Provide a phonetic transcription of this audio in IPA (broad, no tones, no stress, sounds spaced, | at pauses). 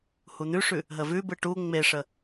h u n̪ ʉ ʂ ʉ | ɦ ə v ʉ b ɯ ʈ u ŋ͡m e ʂ ə